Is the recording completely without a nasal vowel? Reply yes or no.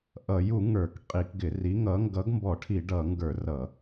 yes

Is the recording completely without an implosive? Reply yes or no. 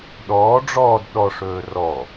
no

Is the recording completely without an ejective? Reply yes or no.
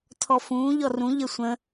yes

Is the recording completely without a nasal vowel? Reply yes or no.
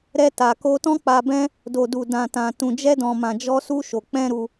no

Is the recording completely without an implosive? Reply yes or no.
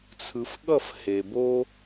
no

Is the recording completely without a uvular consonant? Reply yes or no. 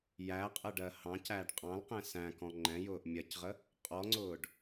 no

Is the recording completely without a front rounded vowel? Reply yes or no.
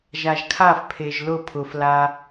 yes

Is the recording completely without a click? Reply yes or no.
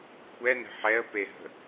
yes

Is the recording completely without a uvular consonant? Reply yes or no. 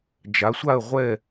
no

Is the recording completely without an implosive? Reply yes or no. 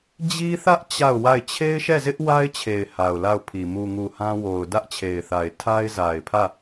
yes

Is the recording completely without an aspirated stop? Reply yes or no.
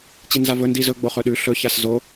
yes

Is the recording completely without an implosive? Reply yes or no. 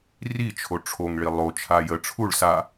yes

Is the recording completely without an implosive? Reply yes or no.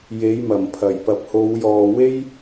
yes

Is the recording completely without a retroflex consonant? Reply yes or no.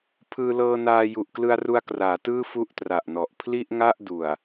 yes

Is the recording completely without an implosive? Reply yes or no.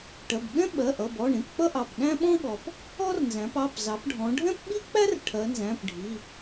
no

